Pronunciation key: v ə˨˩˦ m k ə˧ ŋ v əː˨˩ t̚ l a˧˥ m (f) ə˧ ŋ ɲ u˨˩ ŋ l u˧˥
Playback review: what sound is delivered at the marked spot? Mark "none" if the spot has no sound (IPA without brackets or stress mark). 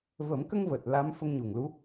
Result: f